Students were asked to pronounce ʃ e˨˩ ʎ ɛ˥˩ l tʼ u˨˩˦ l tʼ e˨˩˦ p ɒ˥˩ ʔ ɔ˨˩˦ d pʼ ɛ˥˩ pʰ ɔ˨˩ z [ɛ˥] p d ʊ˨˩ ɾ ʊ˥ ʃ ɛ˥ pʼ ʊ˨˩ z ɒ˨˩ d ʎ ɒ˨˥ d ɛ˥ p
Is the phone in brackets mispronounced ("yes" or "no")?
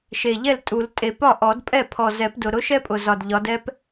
yes